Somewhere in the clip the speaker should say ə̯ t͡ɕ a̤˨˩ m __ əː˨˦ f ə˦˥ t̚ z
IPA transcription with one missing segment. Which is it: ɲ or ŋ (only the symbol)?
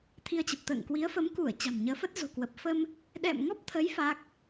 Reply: ɲ